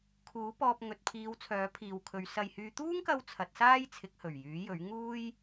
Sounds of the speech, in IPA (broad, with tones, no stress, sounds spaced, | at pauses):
kʰ uː˨˥ p ɔː˧ p̚ ŋ ɵ˨ t̚ pʰ iː˨˧ w t͡sʰ œː˨˥ pʰ iː˨ w kʰ ɵ˨˧ ɥ s ɐ˨ j h yː˨˧ t̪ uː˥ ŋ k ɐ˧ w t͡sʰ ɐ˨˥ t̚ s aː˥ j t͡sʰ ɪ˨˥ k̚ h ɵ˨˩ ɥ j yː˨˥ j ɵ˨˥ ɥ ŋ uː˥ j